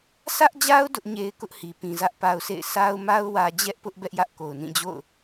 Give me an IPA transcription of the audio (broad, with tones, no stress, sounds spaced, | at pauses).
sʰ ä˦ ʔ d͡ʑ a˦ ʊ̯ d ʊ˦ ʔ ɲ e˦ ɪ̯ k ʊ˦ ʔ h i˨ p ĩ˨ z ä˦ ʔ p a˦ ʊ̯ s ḛ˦˨ ɪ̯ s a˦ ʊ̯ m a˦ ʊ̯ w ä˦ d͡ʑ ɛ˦ ʔ p ʊ˦ ʔ b ɛ˦ ʔ j ä˦ ʔ k o˨ ʊ̯ n ĩ˦˨ d͡ʑ o̰˦˨ ʊ̯